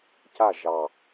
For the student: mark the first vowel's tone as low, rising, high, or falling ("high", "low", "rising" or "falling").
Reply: falling